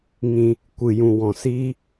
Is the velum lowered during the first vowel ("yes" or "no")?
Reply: yes